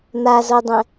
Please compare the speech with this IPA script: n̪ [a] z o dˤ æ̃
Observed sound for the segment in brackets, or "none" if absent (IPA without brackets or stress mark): a